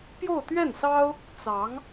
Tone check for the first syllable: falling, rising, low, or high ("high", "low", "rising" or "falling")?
falling